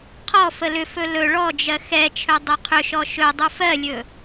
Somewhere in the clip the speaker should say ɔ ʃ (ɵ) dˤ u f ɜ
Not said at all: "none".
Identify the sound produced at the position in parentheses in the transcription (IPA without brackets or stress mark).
ɵ